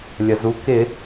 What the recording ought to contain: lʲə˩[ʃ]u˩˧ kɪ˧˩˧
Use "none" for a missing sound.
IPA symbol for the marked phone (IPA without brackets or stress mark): z